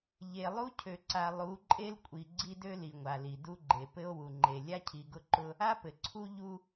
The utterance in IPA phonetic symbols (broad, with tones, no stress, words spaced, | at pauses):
ʎe˨lˠu˦cʰø˨ǀa˨ lˠu˨˦ǃʼe˦lkʷʼi˨ ɡ͡ǀi˦dø˦li˨ŋʷa˨ li˨du˦ɡ͡ǃe˨ pɘ˦o̯wu˨ŋ͡ǃe˨ lʲa˦cʰi˨ɡʊ˦ǃʊ˦ | a˦pɘ˨ ǀʰu˦ ʎu˦